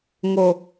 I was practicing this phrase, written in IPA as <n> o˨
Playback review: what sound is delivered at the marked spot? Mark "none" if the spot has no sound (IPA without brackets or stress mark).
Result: ŋ